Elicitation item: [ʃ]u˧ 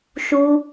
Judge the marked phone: correct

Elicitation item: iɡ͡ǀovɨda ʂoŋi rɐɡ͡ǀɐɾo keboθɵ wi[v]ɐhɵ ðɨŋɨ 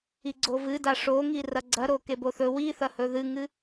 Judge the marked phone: incorrect: θ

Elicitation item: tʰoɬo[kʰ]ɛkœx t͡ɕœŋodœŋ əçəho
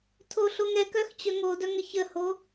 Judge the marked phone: incorrect: ŋ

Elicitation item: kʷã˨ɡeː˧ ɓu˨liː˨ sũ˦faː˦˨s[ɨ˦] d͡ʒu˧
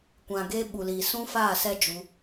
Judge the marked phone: incorrect: ɛ˦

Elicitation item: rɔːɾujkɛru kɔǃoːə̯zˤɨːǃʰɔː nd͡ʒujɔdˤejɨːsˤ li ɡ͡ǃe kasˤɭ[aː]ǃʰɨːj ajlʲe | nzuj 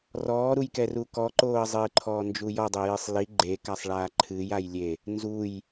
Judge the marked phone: correct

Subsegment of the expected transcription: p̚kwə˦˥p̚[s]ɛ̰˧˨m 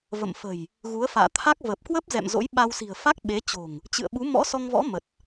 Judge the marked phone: incorrect: z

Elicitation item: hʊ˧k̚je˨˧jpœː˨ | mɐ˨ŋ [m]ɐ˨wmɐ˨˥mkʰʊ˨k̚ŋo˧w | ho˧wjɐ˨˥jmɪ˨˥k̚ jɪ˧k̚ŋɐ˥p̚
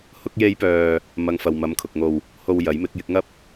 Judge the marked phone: incorrect: f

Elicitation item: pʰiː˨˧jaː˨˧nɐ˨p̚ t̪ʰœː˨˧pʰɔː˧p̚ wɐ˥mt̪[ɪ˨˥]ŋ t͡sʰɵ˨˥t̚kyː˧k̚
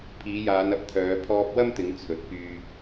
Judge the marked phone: incorrect: ɪ˨˧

